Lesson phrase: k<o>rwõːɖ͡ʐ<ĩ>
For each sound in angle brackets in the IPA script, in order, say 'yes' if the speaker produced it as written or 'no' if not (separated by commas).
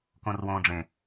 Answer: no, no